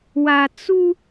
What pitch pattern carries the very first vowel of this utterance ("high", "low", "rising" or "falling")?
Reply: low